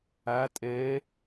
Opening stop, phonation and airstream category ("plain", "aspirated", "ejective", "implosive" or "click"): ejective